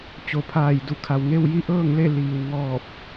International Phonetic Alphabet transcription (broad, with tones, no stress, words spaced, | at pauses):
t͡ɕo˩pʰaː˧˩jdu˧˩kʰa˩w ŋe˥˨wji˥˨ʔɤː˥˨ŋle˥˨ liː˩w ŋɔː˧˩p̚